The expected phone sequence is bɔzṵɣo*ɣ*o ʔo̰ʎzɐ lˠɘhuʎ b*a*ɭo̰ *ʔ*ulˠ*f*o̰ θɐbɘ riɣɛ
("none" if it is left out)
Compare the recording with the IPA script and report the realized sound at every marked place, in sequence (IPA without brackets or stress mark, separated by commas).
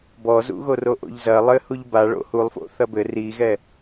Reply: r, a, h, f